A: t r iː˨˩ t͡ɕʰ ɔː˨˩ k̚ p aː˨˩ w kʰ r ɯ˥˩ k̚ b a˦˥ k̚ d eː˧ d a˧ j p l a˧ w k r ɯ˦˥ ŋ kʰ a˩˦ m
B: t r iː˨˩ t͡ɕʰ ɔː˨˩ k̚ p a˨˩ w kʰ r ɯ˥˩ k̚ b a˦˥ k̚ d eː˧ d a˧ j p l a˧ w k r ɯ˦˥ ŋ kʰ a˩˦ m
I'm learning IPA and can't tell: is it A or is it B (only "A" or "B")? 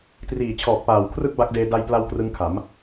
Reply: A